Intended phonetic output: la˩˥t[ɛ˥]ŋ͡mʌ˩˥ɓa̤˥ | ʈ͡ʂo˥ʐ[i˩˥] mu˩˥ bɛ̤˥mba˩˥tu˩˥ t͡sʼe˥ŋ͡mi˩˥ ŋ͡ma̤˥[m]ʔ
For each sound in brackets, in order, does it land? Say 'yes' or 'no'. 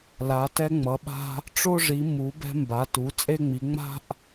yes, yes, no

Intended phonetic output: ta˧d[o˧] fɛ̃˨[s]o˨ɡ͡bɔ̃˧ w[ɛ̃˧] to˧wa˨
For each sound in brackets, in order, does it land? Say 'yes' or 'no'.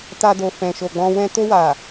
no, no, yes

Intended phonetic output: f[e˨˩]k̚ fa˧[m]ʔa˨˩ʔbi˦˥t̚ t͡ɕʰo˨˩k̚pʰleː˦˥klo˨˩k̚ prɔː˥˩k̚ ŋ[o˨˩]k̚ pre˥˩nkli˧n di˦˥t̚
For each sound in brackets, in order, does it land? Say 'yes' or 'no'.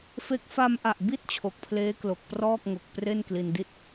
no, yes, yes

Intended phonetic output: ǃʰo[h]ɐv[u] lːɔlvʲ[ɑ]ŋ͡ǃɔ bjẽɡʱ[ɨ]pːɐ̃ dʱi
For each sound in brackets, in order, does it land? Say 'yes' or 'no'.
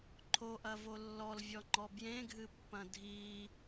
no, no, no, yes

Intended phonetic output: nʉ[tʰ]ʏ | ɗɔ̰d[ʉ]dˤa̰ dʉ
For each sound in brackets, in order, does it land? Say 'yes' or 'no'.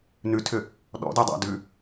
yes, yes

